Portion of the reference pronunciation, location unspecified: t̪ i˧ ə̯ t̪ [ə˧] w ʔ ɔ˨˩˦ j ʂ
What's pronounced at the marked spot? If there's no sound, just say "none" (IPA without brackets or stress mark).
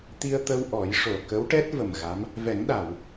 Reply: ə˧